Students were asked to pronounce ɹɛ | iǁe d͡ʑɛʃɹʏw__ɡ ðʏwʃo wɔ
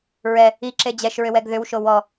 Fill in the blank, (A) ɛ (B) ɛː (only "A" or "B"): A